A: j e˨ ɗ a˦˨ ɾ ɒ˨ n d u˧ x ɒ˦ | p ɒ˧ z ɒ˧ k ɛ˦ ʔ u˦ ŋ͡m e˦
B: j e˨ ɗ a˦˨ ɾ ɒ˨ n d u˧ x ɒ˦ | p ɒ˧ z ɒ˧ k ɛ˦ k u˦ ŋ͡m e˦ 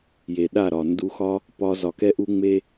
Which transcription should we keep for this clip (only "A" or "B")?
A